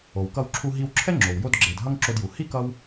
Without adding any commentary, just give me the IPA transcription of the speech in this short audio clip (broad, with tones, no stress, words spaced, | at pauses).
o˩wkʌ˧wǁʰu˧ ɦi˧wǁʰɛ˥ŋ͡ǁo˩w jo˧dɡ͡ǁe˩d ɦʌ˧ŋ ǁo˧dju˩ hi˥ kʌ˧w